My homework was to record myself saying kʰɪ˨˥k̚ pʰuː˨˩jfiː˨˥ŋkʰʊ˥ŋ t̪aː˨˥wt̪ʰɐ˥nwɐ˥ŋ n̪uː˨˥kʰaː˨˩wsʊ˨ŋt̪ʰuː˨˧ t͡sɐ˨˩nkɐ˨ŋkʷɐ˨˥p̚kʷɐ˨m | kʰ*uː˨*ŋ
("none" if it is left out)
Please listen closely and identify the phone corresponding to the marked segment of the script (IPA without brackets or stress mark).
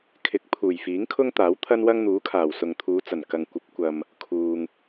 uː˨